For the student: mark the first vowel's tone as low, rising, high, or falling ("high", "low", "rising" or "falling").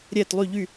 falling